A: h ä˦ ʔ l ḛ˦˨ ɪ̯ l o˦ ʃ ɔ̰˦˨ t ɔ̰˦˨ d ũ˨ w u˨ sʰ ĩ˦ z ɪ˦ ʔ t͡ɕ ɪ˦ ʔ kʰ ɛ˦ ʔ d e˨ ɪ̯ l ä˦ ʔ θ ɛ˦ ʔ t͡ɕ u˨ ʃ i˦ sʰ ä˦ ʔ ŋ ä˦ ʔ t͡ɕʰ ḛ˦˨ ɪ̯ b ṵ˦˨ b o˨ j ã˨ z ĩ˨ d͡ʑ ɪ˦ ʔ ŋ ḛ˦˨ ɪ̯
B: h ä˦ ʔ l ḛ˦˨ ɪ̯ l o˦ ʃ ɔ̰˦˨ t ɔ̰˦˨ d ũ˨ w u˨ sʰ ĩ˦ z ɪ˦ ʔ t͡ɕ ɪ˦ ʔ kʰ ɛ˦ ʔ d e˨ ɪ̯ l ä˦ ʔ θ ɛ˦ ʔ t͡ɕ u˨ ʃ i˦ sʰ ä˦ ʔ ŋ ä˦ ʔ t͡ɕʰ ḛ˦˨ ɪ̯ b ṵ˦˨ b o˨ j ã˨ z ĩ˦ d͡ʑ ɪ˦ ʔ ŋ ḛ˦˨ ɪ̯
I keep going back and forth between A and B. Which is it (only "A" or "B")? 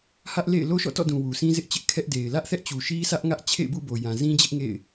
B